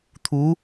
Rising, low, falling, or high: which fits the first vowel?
rising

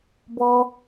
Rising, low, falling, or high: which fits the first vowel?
high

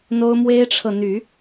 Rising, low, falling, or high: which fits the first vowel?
high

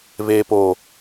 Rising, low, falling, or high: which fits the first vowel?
low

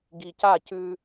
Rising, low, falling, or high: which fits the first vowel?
low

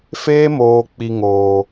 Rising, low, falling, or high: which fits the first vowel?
high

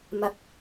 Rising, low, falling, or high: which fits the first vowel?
rising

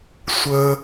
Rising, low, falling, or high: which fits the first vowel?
low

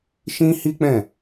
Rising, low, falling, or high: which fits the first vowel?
high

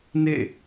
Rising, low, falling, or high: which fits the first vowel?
falling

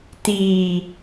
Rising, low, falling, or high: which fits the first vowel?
low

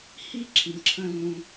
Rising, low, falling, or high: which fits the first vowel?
falling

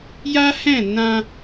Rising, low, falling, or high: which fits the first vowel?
high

